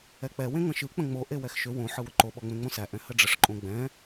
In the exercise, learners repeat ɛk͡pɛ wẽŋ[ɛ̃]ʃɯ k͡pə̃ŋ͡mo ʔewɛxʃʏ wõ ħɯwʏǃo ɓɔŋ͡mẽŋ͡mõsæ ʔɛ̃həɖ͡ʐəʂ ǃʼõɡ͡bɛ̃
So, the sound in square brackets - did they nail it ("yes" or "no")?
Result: no